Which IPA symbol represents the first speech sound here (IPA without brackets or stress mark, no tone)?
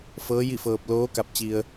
f